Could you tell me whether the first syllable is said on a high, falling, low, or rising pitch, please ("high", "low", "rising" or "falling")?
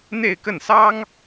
falling